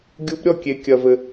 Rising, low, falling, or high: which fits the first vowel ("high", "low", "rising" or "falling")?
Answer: rising